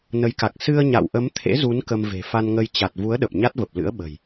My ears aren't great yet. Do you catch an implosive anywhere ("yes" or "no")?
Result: yes